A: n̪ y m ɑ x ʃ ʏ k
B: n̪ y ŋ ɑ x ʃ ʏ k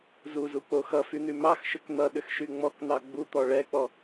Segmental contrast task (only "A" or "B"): A